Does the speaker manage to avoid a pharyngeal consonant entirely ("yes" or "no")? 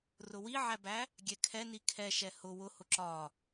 no